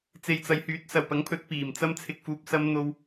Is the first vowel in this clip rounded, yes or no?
no